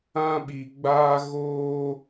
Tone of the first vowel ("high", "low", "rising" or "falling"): high